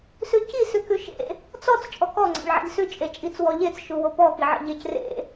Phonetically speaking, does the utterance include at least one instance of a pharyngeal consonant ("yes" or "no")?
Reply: yes